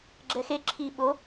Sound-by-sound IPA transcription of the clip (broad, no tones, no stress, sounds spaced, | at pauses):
ɡ͡ǁ ɛ x e ǁʰ i ɓ o